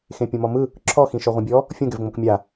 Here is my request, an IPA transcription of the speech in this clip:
x ẽ pʲ õ m ɔ m ɯ | ǁʰ ɔ x ĩ ʃ ɔ ʁʷ ĩ bʲ ɔ | fʲ õ ɡ ɛ v ŋ͡m o k mʲ a

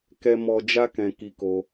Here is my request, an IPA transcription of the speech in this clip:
k ɛ˦ m ɔ˦ d͡ʒ a˦ k ɛ̃˧ k i˧ k o˧

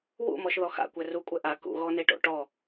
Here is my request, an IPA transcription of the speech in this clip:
w ṵ m ɔ ʃ ð ɔ x a̰ kʷ ɛ r u kʷʼ ɛ ʔ a k ṵ ɣ ɔ n e ʈ o̰ ʈ ɔ

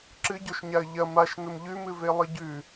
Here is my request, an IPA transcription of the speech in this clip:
ǁ ɨ ɟ o ʃ ɲ a ə̯ ʎ ɐ m a ʃ n ɵ m ʎ ʉ m ɨ v e lˠ ɨ ɟ ʉ

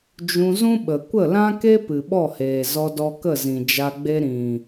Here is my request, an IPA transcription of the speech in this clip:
d͡ʒ ũ˧ z ũ˦ ɓ ə˨ kʷ ə˦˨ l ã˦ k e˦ p ɨ˨ ɓ ɔ˦˨ h eː˨ z ɔ˧ d ɔ˧ k ə˦˨ z ĩ˨ d͡ʒ a˧ ɡ͡b e˦ ɾ ĩ˨

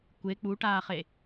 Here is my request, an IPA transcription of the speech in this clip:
kʷ e k͡p u ʈ aː χ e

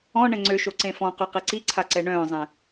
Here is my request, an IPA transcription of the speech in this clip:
ɔ̃ ɳ ɛ̃ ŋ͡ǀ ø ʃ o ǀ ẽ f ɔ̃ q y q e ǀ i ǀʰ a ǀ ɛ ɳ œ̃ː zˤ ɛ̃

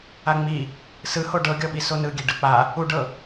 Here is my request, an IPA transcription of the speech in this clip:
a ŋ͡m i | s ɯ h o ɖ ɤ ɡʲ ɔ ɓ i s o n ɯ ɡʲ e ɖ ɯ k͡p a | u ɖ ɤ

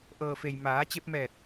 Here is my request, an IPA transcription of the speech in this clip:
ʔ ɤː˩ f e˩ j m aː˩˧ t͡ɕ e˧ p̚ m ɛː˧˩ t̚

